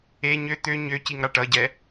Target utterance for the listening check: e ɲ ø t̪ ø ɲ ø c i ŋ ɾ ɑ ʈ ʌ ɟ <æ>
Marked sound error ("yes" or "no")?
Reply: yes